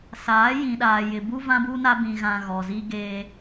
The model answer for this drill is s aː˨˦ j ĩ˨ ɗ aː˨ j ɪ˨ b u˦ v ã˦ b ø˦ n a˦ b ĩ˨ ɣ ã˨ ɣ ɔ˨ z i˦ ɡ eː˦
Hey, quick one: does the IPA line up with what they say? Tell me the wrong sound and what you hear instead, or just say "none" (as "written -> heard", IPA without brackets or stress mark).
ø˦ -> u˦